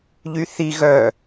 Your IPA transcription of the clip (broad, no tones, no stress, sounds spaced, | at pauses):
ʎ y θ i ɣ œ